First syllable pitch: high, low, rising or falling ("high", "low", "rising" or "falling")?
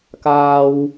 high